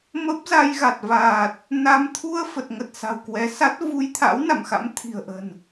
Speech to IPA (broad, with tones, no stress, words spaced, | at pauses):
mə˦˥p̚za˧jɣa˨˩t̚vaː˨˩t̚ | na˧m t̪ʰu˧ə̯fə˨˩t̚ŋə˨˩t̚ sa̤˨˩wkwɛ˨˦sa˦˥t̚ vu˧jt̪ʰa̰˧˥w na̰˧˨mxa̰˧˥m t̪ʰi̤˨˩ə̯ʔə̤˨˩n